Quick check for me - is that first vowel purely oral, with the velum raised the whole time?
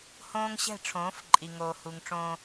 no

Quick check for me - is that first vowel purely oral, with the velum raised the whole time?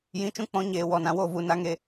no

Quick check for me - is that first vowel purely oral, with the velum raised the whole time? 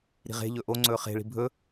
yes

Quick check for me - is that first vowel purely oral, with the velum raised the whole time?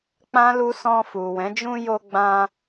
no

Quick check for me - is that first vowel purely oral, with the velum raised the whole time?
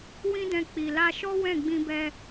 no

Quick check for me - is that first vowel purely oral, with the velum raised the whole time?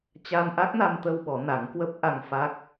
yes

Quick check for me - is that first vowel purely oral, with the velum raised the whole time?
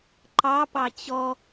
yes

